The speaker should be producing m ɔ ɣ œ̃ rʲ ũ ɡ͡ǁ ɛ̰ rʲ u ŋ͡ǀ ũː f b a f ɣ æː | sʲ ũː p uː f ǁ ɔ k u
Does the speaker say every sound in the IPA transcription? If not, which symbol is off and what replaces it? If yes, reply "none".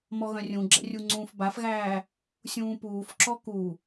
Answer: none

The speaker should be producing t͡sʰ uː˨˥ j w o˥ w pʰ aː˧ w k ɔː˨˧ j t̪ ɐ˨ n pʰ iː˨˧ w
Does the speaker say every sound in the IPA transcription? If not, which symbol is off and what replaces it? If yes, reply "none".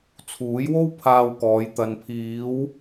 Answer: none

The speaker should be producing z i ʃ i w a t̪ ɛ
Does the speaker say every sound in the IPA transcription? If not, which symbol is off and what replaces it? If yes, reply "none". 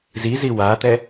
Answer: ʃ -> z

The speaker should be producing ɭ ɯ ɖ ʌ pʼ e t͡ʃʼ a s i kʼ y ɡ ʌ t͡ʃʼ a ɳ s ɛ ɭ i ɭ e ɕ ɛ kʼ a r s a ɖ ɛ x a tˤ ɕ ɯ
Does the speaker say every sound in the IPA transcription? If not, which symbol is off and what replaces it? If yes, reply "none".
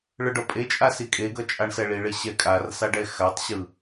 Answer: y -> e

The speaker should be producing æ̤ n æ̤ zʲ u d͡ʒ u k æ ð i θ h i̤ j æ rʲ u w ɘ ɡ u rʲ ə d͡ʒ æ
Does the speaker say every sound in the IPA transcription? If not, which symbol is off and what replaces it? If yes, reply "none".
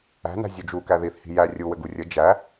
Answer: none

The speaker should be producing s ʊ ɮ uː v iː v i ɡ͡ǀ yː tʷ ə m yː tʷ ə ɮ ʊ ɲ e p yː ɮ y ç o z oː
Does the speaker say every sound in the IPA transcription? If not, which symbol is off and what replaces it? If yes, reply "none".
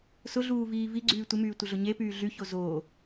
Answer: none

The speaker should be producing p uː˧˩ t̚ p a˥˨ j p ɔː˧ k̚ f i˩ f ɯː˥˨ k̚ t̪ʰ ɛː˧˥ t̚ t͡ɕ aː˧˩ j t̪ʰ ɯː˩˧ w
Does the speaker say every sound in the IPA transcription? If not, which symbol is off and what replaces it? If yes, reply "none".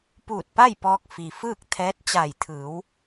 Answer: none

